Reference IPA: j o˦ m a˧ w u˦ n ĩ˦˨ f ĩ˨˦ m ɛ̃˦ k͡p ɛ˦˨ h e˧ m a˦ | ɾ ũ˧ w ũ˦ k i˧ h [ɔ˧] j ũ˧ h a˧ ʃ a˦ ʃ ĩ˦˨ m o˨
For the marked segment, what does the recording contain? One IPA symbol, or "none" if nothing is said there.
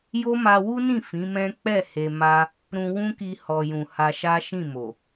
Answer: ɔ˧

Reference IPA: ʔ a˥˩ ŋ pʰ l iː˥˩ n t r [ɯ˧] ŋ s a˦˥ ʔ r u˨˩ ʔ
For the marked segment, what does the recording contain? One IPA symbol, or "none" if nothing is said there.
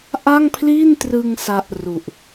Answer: ɯ˧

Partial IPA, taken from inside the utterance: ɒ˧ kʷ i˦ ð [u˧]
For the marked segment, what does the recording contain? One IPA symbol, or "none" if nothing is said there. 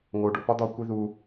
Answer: u˧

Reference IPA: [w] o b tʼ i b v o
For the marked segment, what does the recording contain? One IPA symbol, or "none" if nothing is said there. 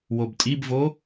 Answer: w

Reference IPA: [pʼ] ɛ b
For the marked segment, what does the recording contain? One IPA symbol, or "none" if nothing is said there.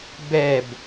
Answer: b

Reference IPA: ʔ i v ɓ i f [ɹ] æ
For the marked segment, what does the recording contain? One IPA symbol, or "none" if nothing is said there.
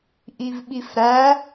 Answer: ɾ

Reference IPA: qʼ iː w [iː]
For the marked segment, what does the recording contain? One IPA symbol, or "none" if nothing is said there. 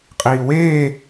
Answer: eː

